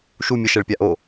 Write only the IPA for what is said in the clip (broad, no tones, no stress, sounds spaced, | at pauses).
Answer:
ʃ u mʲ ə ʃ ɛ ɭ pʲ a ʔ o